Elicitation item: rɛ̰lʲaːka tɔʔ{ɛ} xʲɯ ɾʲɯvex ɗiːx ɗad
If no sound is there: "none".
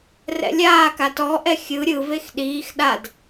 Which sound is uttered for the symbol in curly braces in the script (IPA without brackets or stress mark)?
ɛ